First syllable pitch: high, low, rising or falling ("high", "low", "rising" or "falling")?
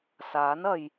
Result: rising